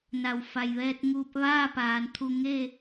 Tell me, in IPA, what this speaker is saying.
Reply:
n a˧˩ w f a˧˩ j ʋ ɛː˧ t̚ ŋ uː˧ p̚ ʋ aː˥˨ p aː˩˧ n t̪ʰ u˧ ŋ e˥˨

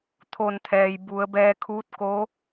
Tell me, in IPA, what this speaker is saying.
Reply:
t̪ʰ o˧˩ n t̪ʰ ɛː˩ j b u˩˧ ə̯ b ɛː˧ kʰ uː˧˥ t̚ k o˧˥

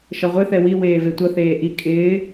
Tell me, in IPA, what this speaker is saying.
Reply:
ʃ ʌ ʁʷ ɪ θ ɛ w i w eː v e tʷ ʌ θ eː ʔ i kʼ ɪː

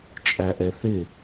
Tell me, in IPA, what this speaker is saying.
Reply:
t͡ʃʼ æ ʔ ɛ θ ɪ

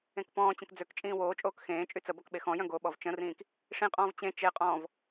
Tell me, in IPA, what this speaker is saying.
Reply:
ẽ k p ɔ̃ː t͡ɕ ə̃ k d͡z ø k t͡ʃʼ ĩː w oː t͡ʃʼ oː k x ẽː t͡ʃʼ y t͡s ə b ɔ k ɓ e x ɔ̃ j œ̃ ɡ o ɓ ɔ v t͡ʃ ə̃ r ĩː k | ʂ ĩ qʼ ɔ̃ː v t͡ɕ ẽ t͡ʃ e qʼ ɔ̃ː v

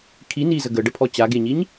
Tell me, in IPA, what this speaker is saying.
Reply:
kʰ i n i z ə ɡ ə ɖ ə pʰ ɔ t͡ɕ a ɡ e ɲ i ɲ

